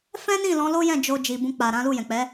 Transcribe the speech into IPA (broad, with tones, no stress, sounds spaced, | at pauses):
f ɛ̃˦ n ĩ˦˨ l ɔ̃˨˦ l o˦ j ɛ̃˦˨ d͡ʒ o˧ d͡ʒ i˨ b ũ˧ k͡p a˨ ɾ ã˨˦ l u˦˨ j ɛ̃˨ k͡p ɛ˨˦